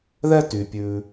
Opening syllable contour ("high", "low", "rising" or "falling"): high